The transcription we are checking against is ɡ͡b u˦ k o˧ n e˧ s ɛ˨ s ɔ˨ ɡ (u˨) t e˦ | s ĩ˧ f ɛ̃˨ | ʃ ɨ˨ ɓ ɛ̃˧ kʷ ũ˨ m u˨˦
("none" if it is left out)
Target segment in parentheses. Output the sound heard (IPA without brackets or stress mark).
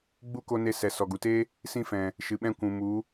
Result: u˨